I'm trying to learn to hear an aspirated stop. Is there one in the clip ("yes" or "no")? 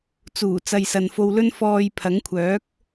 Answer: yes